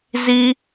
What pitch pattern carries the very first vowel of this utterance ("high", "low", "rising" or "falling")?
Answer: high